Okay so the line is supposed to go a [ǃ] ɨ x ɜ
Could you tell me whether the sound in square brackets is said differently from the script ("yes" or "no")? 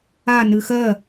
yes